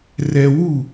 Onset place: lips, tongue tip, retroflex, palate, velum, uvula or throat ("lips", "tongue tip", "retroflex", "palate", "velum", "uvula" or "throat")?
tongue tip